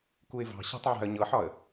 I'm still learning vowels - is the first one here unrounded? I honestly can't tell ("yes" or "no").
no